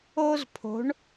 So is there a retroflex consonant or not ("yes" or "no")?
yes